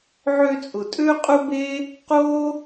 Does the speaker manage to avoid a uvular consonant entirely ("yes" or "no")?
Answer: no